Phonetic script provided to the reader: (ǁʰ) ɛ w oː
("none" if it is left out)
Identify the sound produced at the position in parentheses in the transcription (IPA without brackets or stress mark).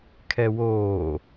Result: kʰ